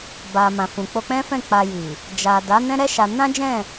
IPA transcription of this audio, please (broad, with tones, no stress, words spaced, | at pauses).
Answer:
ba˨mã˨ fũ˨k͡po˧k͡pɛ̃˦fɛ̃˦˨ k͡pa˧ji˨ | d͡ʒa˨ da˨˦nɛ̃˦ ɾɛ˦ʃa˧ nã˦d͡ʒɛ̃˦˨